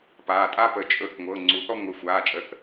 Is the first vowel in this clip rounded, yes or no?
no